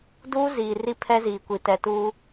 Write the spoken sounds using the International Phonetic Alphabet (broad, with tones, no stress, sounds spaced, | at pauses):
d uː˦ z iː˨ r i˦ pʰ ɛ˦ z iː˨ kʷ i˨ t ɛ˨ t uː˦